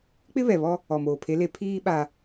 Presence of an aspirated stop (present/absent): present